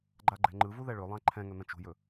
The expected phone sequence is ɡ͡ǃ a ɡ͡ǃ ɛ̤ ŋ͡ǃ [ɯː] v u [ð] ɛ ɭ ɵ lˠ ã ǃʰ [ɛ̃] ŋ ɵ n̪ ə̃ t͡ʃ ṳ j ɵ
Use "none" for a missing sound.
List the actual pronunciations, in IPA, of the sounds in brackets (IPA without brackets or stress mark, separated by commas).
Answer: ɯ, ð, ɛ̃